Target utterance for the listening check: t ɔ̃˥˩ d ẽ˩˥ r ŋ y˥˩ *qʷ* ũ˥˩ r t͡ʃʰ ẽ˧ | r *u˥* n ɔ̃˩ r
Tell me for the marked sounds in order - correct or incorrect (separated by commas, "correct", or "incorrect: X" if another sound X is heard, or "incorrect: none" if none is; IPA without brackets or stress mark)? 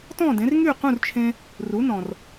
incorrect: q, incorrect: u˩˥